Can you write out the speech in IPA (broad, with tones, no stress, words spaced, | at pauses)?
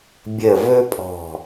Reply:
bʲə˨˩vɵ˧pʼɔ̤˨˩